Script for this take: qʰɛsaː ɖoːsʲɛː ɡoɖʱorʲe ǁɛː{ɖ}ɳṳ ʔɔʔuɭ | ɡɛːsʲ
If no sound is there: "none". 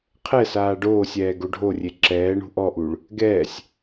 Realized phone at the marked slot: none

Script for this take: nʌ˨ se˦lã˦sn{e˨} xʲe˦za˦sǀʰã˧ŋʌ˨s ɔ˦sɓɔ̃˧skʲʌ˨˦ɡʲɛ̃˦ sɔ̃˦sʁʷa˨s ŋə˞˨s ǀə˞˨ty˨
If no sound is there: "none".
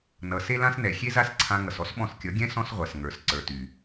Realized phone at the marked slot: ɛ˨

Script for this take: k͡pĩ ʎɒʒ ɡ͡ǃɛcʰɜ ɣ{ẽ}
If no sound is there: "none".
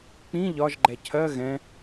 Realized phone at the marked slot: ɛ̃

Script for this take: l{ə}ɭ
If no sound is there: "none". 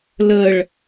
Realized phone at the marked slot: ə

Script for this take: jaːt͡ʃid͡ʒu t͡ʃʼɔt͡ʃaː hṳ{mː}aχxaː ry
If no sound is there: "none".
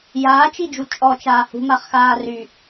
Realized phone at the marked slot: m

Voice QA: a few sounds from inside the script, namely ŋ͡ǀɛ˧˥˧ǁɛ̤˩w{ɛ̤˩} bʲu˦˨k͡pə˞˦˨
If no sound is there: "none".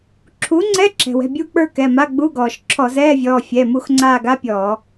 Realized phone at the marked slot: ɛ̤˩˧˩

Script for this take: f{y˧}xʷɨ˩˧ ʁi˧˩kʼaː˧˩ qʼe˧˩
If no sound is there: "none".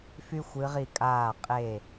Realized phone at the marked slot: y˧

